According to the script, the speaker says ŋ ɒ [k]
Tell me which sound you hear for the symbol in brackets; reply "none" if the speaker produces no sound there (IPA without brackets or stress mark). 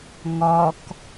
k